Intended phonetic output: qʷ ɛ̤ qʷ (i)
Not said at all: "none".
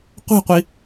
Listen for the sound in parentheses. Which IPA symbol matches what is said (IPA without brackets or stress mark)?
i